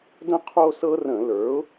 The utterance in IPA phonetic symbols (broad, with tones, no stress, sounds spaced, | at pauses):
d ə̃˦ qʰ o˦ s ɤ˦ r ə̃˧˩˧ l ə˞˩˥ ʊ̯